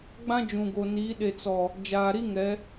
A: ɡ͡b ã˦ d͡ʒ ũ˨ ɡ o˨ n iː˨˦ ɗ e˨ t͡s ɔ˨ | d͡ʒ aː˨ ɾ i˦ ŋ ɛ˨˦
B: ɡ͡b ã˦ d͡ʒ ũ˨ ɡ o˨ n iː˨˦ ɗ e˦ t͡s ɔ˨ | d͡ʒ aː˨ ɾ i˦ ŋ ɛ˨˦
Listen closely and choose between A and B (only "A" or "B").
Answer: A